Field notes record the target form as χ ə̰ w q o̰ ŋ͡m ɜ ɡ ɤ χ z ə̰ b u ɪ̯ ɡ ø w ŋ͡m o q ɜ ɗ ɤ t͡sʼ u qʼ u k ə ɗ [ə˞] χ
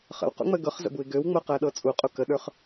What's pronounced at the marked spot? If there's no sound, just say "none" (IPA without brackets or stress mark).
ə˞